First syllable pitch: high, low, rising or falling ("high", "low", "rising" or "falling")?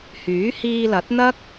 rising